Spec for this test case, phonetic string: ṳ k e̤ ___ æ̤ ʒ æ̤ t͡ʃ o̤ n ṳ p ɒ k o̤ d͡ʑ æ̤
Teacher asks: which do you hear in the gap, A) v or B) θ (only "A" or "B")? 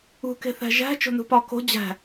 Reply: B